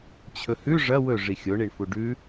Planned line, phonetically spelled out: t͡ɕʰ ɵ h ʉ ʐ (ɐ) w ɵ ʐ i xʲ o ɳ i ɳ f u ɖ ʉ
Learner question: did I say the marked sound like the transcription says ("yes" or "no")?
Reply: yes